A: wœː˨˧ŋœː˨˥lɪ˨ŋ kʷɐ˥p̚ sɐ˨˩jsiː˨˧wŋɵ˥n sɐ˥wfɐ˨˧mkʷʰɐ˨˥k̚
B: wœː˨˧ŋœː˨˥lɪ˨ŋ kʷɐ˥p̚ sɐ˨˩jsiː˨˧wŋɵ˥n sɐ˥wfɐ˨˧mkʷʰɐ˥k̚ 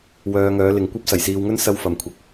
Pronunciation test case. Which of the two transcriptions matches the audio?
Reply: A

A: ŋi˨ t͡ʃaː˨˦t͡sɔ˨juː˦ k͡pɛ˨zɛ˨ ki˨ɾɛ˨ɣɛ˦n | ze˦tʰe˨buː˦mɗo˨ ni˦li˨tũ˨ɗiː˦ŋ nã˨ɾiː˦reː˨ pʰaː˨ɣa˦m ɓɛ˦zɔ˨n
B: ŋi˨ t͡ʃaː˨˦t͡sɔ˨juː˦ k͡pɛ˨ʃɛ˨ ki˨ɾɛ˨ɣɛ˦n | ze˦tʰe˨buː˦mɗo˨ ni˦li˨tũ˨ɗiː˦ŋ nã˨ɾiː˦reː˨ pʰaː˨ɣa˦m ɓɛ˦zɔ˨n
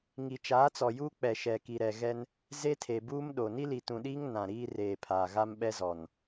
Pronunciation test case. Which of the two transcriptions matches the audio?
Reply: B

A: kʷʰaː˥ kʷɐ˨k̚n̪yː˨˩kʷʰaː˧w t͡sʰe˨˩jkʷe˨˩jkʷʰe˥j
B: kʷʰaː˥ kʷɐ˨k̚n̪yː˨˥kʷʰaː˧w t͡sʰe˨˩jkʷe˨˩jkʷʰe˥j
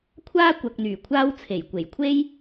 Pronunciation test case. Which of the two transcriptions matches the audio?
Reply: A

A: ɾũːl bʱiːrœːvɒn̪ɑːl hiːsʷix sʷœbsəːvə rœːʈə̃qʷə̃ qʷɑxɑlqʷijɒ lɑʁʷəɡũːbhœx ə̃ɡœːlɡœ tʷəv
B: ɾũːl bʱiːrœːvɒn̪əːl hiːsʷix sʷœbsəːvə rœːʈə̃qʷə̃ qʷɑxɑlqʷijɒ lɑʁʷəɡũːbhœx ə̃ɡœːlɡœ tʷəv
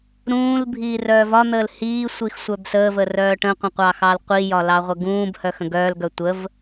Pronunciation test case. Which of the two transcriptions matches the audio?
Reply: B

